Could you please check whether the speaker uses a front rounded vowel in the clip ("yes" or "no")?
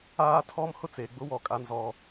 no